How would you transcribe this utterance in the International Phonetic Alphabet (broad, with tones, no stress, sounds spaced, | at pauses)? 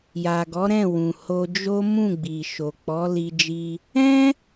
j a˨ ɡ ɔ˨˦ ɾ ɛ̃˦˨ w ũ˨ h o˧ d͡ʒ o˦ m ũ˦˨ ɡ͡b i˨ ʃ o˨ k͡p ɔ˨˦ l i˧ d͡ʒ i˧ | ɛ̃˦